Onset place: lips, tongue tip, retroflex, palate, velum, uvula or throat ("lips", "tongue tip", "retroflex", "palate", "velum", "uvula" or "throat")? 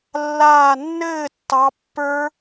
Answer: tongue tip